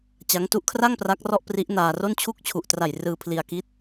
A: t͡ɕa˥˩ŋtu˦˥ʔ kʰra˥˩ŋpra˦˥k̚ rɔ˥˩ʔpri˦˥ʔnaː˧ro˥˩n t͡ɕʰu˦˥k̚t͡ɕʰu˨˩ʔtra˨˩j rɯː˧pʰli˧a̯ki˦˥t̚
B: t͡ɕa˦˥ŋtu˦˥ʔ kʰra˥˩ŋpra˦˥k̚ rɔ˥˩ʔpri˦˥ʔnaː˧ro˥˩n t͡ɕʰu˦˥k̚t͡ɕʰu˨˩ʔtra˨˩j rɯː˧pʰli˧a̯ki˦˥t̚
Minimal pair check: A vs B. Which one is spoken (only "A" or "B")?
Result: B